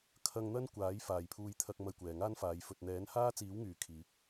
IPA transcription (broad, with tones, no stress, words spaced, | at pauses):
kʰɐ˧ŋn̪ɐ˥n kʷaː˨˥j faː˨jpʰuː˧jt̪ʰɐ˧k̚ mɐ˧jkʷɛː˨ŋaː˥nfaː˨˧j fɵ˨t̚n̪ɛː˨˥n haː˥t͡siː˨˥wŋyː˨˩ kʰiː˨˥k̚